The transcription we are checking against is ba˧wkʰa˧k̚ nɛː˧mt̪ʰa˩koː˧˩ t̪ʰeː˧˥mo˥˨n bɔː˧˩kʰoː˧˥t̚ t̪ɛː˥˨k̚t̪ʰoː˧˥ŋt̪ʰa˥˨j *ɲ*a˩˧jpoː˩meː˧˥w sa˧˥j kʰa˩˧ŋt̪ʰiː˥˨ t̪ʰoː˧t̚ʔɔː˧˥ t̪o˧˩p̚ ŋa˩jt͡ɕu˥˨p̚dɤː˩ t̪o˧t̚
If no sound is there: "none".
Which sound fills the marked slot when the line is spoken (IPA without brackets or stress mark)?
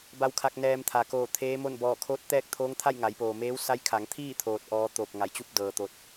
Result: ŋ